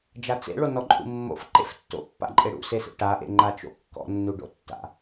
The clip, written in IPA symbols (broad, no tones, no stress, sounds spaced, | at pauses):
d͡ʒ a t͡s ḛ ɭ o n ɔ ǃʼ ṵ mː o̰ f ǃ ḛ f tː o̰ pː a̰ ǃʼ e ɽ ṵ s e s ḛ ʈ a ʔ ḛ ŋ͡ǃ a t͡ʃ o̰ kː ɔ̰ nː u ɖ o̰ tː a̰